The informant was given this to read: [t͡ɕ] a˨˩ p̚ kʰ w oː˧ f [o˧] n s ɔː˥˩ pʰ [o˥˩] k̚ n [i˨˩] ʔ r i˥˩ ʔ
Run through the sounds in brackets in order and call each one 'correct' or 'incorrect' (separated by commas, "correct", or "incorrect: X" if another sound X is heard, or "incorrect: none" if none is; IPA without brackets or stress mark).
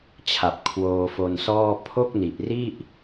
incorrect: t͡ɕʰ, correct, correct, correct